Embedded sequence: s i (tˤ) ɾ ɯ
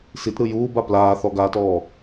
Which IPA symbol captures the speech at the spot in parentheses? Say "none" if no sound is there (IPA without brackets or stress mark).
t